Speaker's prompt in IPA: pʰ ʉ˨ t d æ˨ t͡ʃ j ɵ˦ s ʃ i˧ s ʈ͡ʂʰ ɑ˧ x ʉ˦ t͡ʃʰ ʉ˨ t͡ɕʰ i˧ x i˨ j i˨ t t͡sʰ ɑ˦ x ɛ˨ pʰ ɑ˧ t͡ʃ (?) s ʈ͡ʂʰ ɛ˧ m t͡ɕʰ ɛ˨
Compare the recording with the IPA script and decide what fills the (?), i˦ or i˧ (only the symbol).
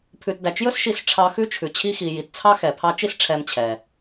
i˦